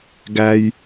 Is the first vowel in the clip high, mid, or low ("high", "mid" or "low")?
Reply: low